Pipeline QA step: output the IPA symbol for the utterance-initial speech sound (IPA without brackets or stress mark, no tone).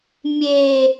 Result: mʲ